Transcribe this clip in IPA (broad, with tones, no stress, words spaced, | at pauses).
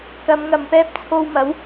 kɐ˨˧m ŋɐ˨mpɛː˥p̚t͡sʰo˧wmɐ˨˥w